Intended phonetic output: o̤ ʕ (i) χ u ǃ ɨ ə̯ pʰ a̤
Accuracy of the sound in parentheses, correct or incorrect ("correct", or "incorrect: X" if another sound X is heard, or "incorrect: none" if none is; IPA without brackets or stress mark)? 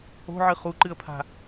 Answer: incorrect: ɨ